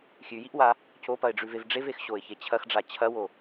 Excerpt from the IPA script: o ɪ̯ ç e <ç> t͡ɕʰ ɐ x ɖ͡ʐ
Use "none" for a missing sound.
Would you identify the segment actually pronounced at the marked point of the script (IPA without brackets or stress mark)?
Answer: none